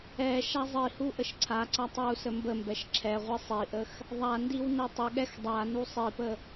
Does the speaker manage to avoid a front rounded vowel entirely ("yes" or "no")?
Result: yes